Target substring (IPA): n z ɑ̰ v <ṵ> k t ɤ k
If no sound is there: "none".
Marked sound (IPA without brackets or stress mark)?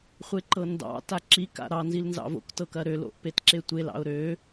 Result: o̰